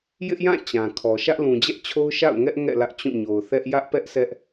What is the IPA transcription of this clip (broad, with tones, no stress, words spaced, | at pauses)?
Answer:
jɪ˦ʔjã˦˨ t͡ɕã˨kʰɔ˨ ʃä˦ʔlũ˨d͡ʑɛ˦ʔt͡ɕʰo˦ʊ̯ ʃa̰˦˨ʊ̯ŋɛ˦ʔ ŋɛ̰˦˨ lä˦ʔt͡ɕũ˦˨ ɲo˨ʊ̯θɛ˦ʔ jä˦ʔ pɛ˦ʔ sʰɛ˦ʔ